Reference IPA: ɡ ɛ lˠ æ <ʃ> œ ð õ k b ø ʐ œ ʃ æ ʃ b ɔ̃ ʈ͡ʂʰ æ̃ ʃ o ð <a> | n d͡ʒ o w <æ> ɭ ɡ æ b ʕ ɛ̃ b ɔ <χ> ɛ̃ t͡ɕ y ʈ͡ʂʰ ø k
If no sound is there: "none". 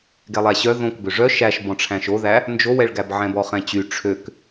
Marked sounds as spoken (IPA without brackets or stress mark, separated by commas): ɕ, æ, ɛ, χ